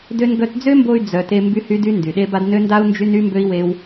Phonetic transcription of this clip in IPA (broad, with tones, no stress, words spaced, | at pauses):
dø˧nɡœ˧td͡zø˦mbo˧y̯ d͡zœ˨te˧ mby˦hy˦dy˦ ndy˨ɗe˦ba˦d nø˦nda˦u̯ nd͡ʒy˦n y˦mbø˦i̯we˦w